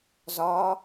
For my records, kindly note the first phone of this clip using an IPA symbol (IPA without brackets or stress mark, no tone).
z